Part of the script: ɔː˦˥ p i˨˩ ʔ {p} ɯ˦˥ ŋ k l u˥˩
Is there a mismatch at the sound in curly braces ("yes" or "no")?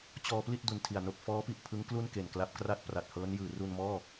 yes